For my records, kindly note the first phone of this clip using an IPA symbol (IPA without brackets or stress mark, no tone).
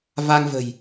v